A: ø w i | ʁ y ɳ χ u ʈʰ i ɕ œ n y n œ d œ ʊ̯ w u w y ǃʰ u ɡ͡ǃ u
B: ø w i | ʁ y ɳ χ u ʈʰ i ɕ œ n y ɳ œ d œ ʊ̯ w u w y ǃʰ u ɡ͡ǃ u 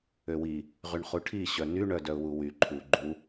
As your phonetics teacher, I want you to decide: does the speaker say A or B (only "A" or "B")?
B